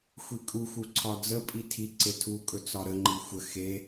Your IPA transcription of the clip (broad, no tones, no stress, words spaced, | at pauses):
xʷikʼuxu ǀʰɒd͡zəpʼi tʰi ǀetʰukʼɵ t͡sɒɾəŋ͡ǃi xʷə xe